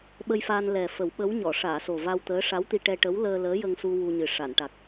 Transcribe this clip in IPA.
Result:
ɓ ə˧ j f aː˧ n l ɛ˨˩ f ə˨˩˦ w ɓ ə˧˥ w ɲ ɔ˨˩˨ ʂ aː˨˩˨ s o˨˩ v a˧ w t̪ əː˧˥ ʂ a˧˥ w t̪ i˧ ʈ ɛ˧ ʈ ə˧˥ w l əː˧ l əː˧˥ j ə˧ ŋ s u˧ w u˧ ɲ ɨ˨˩ ʂ a˨˩˨ n ʈ a˨˩ k̚

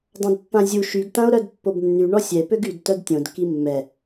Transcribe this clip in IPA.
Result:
dˤ ã d pː ã zʲ u ʃ y ɡ t ã o̯ ɾ œ d pː o b nː y ɳ ɔ sʲ ɛ p ø ɡ y d t œ d tʲ õ d k i mː ɛ

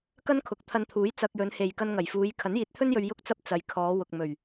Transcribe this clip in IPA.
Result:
k ɐ˥ n kʰ ʊ˨˥ k̚ t̪ʰ ɐ˧ n t̪ʰ uː˨˥ j t͡s ɐ˧ k̚ j ɵ˨˧ n h e˨ j k ɐ˧ n ŋ ɐ˨˩ j f uː˨˧ j kʰ ɐ˨˥ n j iː˨˥ t̚ t̪ʰ ɵ˥ n j ɵ˧ ɥ j ʊ˥ k̚ t͡s ɐ˥ p̚ t͡s ɐ˨ j kʰ ɔː˨˧ w ʊ˨ k̚ m ɵ˨˩ ɥ

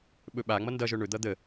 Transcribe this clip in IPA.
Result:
ɓ ɵ ɓ a ŋ͡m ʌ n d ʌ ʒ œ ɳ ɵ d̪ ʌ d̪ ə

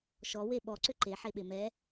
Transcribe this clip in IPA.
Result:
ʃ ɔ w e ɓ ɔ ǀ ʏ ǃ e ħ e ɓ e m ɛ

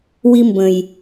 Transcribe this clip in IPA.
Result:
w i˦ m b ə̃˨ j

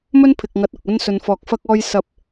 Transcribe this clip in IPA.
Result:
m ɵ˥ n pʰ ɪ˨ k̚ ŋ ɐ˨˥ t̚ ʊ˨ k̚ ɵ˥ n s ɵ˧ n f ɔː˧ k̚ f ɐ˥ k̚ ɔː˧ j s ɐ˨˥ p̚

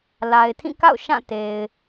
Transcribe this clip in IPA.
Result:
l a˨ ɪ̯ tʰ ĩ˦˨ k a̰˦˨ ʊ̯ ʃ ã˦˨ t e˨ ɪ̯

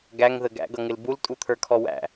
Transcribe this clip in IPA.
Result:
ɡ æ ŋ ð ə ɡ æ̰ ɡ ʌ ŋ ɪ l b u l tʼ u t̪ʰ ə˞ kʰ ɔ w æ̰

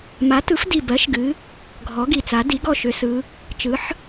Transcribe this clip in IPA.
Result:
m a˩˥ t ɯ˩˥ f d i˨˩ b ɜ˩˥ ʃ ɡ ɨ˩˧ | ɡʱ ɔ˩˥ ɡ i˨˩ t͡s a˩˥ d i˩˥ ɡ ɔ˥˩ ʃ ʏ˩˧ s ɯ˩˧ | t͡ʃ ɯ˩˥ ħ

